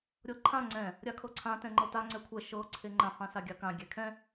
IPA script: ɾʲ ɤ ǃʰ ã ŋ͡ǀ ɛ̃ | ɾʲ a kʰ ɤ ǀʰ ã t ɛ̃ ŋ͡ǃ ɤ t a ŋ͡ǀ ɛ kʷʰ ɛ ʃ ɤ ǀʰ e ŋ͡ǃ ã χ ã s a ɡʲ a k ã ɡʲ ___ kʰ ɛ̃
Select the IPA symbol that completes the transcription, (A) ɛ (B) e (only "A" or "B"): A